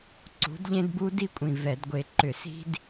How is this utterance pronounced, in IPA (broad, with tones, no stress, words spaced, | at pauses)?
ǀṳ˨˥dʎẽ˥dbu˥ di˥kʷʼĩ˨˩ vɛ˧˩˧dɡʷe˧ ǃʏ˧˩˧si̤˥d